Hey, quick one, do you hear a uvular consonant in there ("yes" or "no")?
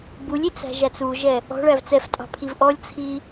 no